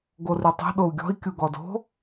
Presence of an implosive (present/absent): present